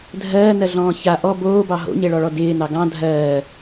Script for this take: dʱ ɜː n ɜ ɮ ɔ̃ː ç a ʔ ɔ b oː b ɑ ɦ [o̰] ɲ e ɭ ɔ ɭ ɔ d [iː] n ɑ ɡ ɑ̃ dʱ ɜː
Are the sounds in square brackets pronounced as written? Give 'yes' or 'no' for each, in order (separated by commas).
yes, no